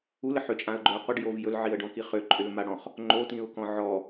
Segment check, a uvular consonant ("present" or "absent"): present